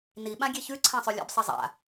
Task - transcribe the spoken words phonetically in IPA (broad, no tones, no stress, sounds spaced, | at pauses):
n i ɓ ã ɡʲ e ç ʉ ǀʰ ã sˤ ʉ lʲ ɛ̰ b sˤ ɛ zˤ a̰